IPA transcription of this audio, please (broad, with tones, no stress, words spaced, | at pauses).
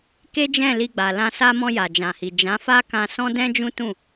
ke˦d͡ʒɛ̃˦˨li˧ ɡ͡ba˨lã˧ sa˧ mɔ̃˧ja˨d͡ʒã˨hi˨ d͡ʒã˨˦fa˦kã˧ sɔ̃˦dɛ̃˦d͡ʒũ˦tũ˦˨